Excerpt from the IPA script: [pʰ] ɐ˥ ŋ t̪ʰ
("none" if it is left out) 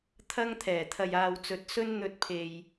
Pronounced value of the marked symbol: t̪ʰ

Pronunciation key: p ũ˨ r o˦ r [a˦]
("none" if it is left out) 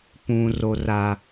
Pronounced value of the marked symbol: a˦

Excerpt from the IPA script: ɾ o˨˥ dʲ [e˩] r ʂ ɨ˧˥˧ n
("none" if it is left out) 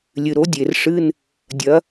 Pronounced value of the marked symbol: e˩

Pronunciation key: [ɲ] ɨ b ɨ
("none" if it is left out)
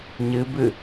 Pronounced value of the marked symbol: ɲ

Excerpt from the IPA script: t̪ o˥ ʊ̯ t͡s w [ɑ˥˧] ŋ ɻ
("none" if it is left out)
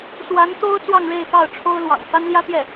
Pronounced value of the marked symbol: ɑ˥˧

